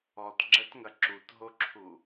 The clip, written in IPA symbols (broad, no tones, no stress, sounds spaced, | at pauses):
ɔ t ɡ͡ǁ ɛ t ŋ ɐ ǁ u t ɦ o ǁʰ u